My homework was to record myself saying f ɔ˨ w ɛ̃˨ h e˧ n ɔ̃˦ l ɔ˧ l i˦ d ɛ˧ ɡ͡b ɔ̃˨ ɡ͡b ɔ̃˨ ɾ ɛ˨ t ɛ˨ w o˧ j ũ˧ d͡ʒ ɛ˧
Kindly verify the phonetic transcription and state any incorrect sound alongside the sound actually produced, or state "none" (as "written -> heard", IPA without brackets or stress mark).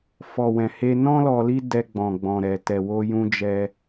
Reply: none